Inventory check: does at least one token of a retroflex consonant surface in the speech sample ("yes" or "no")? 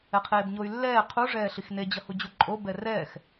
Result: yes